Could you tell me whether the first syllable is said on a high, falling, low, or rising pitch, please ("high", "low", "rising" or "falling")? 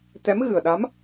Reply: rising